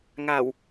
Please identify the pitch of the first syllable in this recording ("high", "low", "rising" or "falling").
low